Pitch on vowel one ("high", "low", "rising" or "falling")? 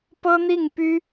high